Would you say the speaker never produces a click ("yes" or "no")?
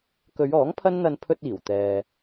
yes